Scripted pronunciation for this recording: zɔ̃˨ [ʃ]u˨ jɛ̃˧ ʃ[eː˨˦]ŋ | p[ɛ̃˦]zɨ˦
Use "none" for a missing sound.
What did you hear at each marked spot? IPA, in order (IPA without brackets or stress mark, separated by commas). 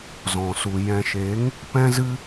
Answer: s, eː˨˦, ɛ̃˦